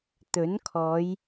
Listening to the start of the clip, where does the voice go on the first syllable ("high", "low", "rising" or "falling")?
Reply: rising